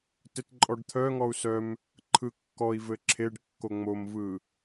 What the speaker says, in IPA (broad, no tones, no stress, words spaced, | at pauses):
tɘtǃʼɔɖt̪ʰœŋɔu̯ sœm | ǃʰɯkːɔi̯vɘ ǁʰeɖkːo ŋ͡momvɯ